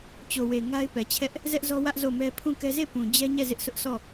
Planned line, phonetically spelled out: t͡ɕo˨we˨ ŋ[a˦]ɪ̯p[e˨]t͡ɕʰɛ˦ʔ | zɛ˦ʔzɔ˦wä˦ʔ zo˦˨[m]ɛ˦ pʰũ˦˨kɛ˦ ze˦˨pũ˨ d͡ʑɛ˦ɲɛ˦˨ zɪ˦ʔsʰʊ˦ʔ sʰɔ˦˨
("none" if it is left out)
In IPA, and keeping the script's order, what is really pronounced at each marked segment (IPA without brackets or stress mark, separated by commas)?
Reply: a˦, ɛ˨, m